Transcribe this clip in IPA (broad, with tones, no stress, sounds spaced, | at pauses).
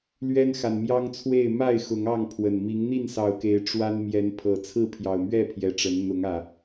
l ɥ ɛ˦ n x a˨ n m j ɑ˦ ŋ t͡sʰ w e˥˨ ɪ̯ m a˥˨ ɪ̯ x ʊ˨˦ ŋ ɑ˥˨ ŋ pʰ w ə˨˩ n m i˨˦ ŋ n̪ i˥˨ n s ɑ˨˩ ʊ̯ k e˨˦ ɪ̯ ʈ͡ʂ w a˦ n m j ɛ˨˦ n pʰ ɤ˨˩ t͡sʰ ɹ̩˥˨ pʰ j ɑ˨˩ ʊ̯ m ɥ ɛ˥˨ pʰ j ɛ˨˦ ʈ͡ʂ ə˨˦ n n̪ ʊ˨˦ ŋ ä˨˩